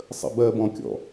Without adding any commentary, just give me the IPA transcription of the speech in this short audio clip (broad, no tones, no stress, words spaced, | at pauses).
sˤə̰bɜbɔ̃kʲɔ̰